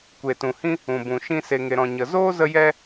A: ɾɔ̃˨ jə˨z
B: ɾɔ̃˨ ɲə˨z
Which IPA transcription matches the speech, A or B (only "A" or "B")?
B